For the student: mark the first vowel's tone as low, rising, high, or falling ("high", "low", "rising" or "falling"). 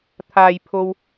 low